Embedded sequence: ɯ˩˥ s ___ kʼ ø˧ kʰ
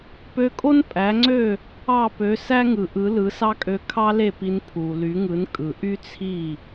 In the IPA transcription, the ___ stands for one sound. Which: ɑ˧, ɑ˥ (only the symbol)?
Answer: ɑ˥